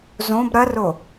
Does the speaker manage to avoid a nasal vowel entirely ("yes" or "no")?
no